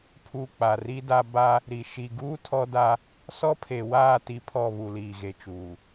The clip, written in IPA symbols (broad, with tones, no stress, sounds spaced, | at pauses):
pʰ u˨ k͡p a˨ r i˦ d a˦ b a˦ | ɾ i˨ ʃ i˨ ɡ uː˦ tʰ ɔ˦ d a˦ | s ɔ˦ pʰ e˨ w aː˦˨ t i˦ pʰ ɔ˦˨ β u˨ l iː˨ ɣ e˨ t͡ʃ uː˨